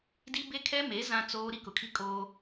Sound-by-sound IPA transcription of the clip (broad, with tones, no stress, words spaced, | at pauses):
di˦ be˦kʰɛ˦me˨˦ zã˦t͡soː˦ ɾi˦kʊ˨kʰi˦ kʼoː˦